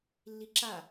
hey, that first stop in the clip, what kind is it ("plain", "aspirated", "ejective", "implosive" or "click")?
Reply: click